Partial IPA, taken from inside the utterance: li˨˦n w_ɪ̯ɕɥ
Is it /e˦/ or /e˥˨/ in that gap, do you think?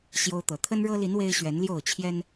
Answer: e˦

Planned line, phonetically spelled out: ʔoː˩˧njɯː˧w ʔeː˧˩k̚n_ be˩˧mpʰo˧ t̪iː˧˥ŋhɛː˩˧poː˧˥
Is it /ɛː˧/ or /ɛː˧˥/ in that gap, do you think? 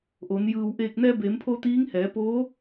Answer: ɛː˧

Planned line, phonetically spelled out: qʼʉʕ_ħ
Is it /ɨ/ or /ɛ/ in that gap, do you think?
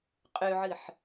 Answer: ɨ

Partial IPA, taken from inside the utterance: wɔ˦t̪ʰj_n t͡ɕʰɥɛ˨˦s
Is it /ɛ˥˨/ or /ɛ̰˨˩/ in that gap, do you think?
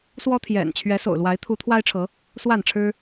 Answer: ɛ̰˨˩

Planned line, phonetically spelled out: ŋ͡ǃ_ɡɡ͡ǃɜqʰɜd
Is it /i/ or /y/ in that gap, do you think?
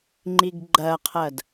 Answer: i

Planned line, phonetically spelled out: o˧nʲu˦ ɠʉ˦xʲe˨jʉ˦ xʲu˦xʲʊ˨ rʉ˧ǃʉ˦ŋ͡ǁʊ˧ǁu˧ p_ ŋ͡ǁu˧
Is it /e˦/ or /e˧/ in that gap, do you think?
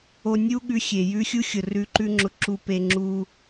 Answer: e˧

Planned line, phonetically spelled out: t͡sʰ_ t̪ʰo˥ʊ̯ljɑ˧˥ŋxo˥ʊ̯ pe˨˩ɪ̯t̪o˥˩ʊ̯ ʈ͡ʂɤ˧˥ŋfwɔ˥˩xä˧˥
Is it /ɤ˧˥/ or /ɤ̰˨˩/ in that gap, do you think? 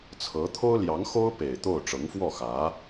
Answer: ɤ˧˥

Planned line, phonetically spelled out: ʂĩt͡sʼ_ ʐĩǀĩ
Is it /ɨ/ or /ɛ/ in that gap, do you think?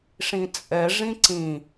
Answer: ɛ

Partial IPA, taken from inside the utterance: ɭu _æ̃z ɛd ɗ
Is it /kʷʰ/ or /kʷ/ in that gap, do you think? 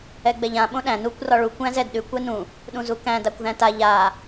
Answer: kʷ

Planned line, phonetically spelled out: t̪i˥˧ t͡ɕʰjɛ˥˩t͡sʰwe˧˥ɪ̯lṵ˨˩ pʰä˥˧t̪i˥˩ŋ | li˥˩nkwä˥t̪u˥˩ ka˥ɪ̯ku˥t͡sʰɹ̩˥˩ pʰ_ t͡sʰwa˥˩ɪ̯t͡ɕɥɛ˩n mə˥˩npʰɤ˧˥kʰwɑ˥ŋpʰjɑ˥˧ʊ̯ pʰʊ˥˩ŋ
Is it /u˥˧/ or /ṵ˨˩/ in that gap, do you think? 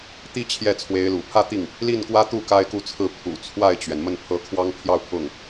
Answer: ṵ˨˩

